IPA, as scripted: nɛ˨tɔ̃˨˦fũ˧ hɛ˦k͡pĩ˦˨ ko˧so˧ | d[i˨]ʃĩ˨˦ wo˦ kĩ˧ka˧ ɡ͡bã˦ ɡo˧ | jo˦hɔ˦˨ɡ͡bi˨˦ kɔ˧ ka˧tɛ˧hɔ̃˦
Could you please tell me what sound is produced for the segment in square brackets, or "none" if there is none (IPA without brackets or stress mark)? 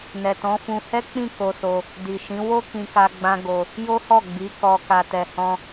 i˨